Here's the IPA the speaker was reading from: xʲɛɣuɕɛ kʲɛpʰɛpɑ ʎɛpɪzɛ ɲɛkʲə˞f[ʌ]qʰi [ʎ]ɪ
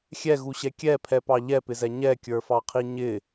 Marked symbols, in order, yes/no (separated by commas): no, no